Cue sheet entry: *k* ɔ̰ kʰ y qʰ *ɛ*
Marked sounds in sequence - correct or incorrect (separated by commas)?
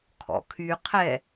incorrect, correct